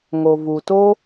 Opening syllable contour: low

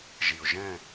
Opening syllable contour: low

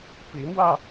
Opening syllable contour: rising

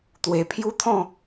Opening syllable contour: low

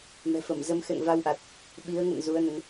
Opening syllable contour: low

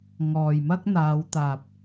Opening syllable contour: low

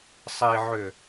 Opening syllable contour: low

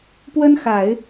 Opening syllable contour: high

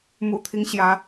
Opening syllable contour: low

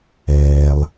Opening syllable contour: low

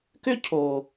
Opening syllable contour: high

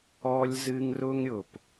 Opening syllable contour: high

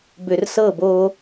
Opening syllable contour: low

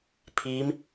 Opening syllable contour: rising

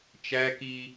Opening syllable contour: high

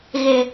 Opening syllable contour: low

